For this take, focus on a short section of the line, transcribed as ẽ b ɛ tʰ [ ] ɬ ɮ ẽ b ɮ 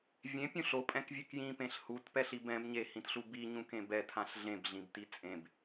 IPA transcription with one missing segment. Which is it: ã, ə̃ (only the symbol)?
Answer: ã